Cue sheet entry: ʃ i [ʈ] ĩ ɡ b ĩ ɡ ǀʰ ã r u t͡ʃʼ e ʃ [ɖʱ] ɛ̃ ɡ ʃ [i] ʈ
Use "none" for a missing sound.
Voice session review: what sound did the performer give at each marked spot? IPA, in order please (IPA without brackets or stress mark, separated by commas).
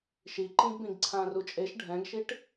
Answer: ǃ, ɖʱ, i